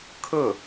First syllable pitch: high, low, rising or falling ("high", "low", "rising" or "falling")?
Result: falling